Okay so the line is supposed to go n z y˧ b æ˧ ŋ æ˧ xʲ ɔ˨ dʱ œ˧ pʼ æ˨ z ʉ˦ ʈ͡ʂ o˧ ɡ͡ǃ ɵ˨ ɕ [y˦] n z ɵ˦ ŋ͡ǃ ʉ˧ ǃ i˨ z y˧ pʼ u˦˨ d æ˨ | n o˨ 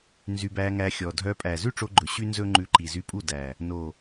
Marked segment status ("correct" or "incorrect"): correct